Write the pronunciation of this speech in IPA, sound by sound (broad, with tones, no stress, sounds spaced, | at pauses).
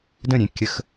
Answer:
d ə̃˥˨ ɾʲ ẽ˩˧ kʲ ə˧˥ x